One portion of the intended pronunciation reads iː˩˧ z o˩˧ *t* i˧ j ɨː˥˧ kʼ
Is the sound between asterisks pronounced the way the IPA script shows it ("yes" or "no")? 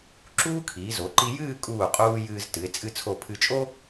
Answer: no